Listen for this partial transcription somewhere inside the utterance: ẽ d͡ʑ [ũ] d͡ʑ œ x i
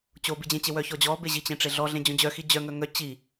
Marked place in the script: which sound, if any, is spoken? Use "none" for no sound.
õ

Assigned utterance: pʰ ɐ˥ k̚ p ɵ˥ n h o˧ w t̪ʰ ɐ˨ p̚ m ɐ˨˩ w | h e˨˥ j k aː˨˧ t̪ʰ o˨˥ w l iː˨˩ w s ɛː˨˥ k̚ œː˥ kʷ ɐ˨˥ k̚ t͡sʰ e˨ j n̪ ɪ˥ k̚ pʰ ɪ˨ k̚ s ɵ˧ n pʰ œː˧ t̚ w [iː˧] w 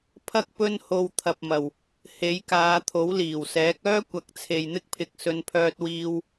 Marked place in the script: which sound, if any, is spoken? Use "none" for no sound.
iː˧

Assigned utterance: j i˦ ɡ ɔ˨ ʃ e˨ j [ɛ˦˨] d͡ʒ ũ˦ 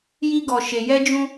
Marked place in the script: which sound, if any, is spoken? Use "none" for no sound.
ɛ˦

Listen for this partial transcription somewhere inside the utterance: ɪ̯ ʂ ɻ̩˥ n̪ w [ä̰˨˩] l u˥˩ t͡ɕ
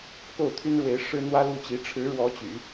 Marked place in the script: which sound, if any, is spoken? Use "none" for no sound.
ä˥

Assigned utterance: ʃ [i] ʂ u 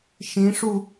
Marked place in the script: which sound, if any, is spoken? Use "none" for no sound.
ĩ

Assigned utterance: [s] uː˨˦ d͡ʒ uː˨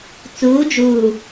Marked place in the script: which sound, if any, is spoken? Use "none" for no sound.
t͡s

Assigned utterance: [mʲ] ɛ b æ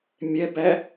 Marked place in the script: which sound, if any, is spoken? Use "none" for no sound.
mʲ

